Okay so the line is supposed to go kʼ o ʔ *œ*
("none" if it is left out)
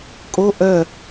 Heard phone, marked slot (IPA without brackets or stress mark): œ